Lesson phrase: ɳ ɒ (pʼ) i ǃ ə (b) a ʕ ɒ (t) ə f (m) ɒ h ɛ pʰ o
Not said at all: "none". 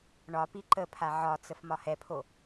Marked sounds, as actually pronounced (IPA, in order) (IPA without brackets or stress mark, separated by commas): p, pʰ, t͡s, m